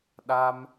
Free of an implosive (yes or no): no